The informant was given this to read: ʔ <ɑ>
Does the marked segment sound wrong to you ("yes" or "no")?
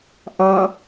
no